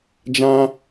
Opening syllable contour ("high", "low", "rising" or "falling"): high